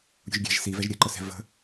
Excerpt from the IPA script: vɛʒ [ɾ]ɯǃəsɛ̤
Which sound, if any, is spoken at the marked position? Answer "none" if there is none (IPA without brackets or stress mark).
ɾʲ